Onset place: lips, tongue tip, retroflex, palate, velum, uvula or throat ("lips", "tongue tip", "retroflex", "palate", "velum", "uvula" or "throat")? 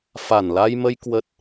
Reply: lips